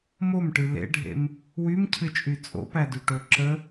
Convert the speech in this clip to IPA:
m o m ʈ ɨ l ḛ ɖʱ ḛ m | w y m cʰ ɨ t͡ʃʼ y t͡sʼ o̰ p æ d y ʈ o ǁ ə

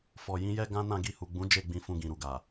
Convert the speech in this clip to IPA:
f ɔ˨ j ĩ˨˦ j ɛ˦ ɡ ã˦ n ã˦˨ ɡ i˧ h u˨ ɡ͡b ũ˨˦ d͡ʒ e˦˨ ɡ͡b ĩ˧ f ũ˧ ɡ ĩ˨ ɾ u˨ ɡ a˨

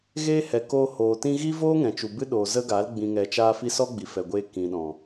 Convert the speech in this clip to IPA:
ɣ eː˦ h ɛ˨ k oː˧ h oː˨ t ĩ˧ ɣ i˦ v oː˦ ŋ ɛ̃˨ t͡ʃ u˨ b ɨ˦ ɗ oː˨ z ə˦ ɡ a˨˦ l ɡ͡b ĩ˨ ŋ ɛ˨ t͡ʃ aː˧ f i˧ s ɔ˦ ɡ͡b i˨ f ɛ˨ ɡʷ eː˧ k ĩ˨ ɗ ɔ̃˨

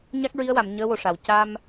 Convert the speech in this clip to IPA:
ɲ a˦˥ k̚ ɹ i˧˥ ə̯ w a˨˩˨ m ɲ əː˧˥ w o˨˩ ʂ a˨˩˨ w c a˧ m

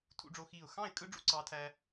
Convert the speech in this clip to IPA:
tʰ ṵ˥ ɖ͡ʐ o˥ x iː˥˧ ʊ̯ x ɑ̃˥˧ ɪ̯ kʼ ɯ˥ ɖ͡ʐ ṵ˥ ǀ ɑː˥ tʰ æ˥

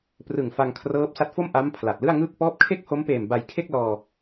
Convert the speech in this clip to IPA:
p r ɯ˨˩ ŋ f a˧ ŋ kʰ r ɤː˦˥ p̚ s a˦˥ t̚ f o˥˩ m ʔ a˦˥ m pʰ l a˨˩ t̚ l ɯ˥˩ a̯ ŋ ɯː˥˩ k̚ p ɔː˦˥ p̚ kʰ e˥˩ k̚ h o˦˥ m p eː˨˩ m b a˧ j kʰ e˥˩ k̚ l ɔː˧

